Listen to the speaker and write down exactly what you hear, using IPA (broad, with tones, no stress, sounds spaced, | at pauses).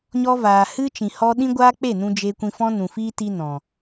ɲ ɔ˧ v aː˨ h ɨ˦ t͡ʃ ĩ˨ h ɔ˦ ɗ ĩ˦ ɡʷ aː˦ k͡p e˦˨ n ũ˧ d͡ʒ e˧ kʷ ĩ˧ f ɔ̃˦ n ũ˨ f iː˦ t i˦ n ɔ̃˨